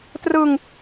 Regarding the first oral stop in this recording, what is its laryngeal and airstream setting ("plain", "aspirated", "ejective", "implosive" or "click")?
plain